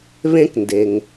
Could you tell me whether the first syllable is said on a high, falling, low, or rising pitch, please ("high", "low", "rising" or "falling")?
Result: high